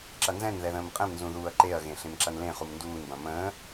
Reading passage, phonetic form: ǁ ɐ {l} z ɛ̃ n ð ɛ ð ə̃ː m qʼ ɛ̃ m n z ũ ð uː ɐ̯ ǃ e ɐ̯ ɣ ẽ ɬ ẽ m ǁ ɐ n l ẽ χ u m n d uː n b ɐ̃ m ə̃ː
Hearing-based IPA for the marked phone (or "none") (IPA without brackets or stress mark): n